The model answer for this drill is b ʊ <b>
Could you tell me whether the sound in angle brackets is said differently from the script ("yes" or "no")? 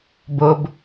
no